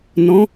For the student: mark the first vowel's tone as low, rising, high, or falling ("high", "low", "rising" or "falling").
rising